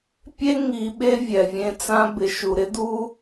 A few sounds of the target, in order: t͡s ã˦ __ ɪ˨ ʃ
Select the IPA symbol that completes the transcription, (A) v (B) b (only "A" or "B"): B